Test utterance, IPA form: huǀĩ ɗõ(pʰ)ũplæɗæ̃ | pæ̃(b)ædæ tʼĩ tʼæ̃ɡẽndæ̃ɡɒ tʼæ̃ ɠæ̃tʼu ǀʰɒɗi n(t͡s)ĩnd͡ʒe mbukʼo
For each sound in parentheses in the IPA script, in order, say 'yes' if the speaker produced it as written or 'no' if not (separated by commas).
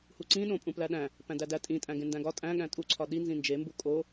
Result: no, no, no